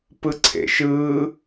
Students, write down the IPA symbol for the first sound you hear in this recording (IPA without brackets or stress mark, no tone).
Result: p